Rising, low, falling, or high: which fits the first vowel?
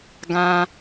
high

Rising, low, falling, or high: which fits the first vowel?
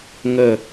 falling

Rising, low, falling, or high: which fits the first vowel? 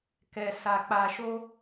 low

